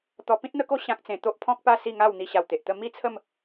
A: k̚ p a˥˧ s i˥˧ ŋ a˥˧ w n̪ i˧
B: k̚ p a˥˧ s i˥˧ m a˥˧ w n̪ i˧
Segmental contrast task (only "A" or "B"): A